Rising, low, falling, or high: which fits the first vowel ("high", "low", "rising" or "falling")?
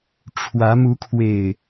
rising